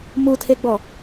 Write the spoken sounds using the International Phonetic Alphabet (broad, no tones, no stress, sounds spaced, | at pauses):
m u tʰ e ɡ͡b ɔ